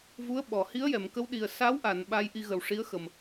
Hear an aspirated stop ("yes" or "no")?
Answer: no